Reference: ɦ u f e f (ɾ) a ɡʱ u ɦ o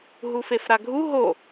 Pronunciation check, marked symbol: correct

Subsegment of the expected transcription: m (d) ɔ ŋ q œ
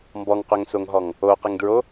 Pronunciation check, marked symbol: incorrect: b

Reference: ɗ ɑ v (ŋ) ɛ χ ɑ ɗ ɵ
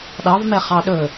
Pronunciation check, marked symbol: incorrect: m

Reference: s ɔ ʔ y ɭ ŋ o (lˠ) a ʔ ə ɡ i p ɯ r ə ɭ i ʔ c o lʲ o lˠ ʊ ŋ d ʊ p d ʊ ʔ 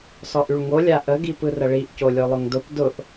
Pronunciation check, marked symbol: incorrect: lʲ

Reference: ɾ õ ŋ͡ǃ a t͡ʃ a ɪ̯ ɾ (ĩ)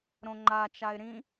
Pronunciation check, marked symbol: correct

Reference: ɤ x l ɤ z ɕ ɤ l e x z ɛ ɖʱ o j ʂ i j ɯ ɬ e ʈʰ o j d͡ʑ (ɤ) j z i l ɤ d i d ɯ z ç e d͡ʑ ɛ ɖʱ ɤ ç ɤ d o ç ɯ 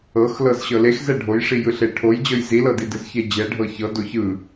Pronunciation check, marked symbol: correct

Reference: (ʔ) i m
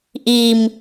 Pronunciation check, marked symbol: correct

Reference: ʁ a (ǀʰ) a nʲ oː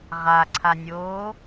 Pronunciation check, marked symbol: correct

